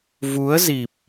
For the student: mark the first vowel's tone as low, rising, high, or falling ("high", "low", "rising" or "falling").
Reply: rising